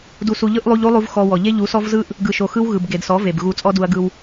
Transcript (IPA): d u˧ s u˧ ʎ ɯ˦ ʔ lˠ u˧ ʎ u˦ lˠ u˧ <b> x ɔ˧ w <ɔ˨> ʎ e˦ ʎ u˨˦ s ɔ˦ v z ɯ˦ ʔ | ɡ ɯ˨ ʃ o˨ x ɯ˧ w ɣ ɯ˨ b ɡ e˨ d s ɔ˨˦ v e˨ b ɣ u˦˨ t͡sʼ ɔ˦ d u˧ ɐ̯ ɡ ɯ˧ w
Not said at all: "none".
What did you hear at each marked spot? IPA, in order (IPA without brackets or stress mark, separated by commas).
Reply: v, ɔ˨